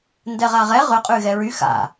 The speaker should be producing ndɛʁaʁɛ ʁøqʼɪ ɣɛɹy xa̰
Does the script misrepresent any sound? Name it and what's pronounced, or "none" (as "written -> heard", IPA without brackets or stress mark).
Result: ɪ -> y